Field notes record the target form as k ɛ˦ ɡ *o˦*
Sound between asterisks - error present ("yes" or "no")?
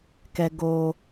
yes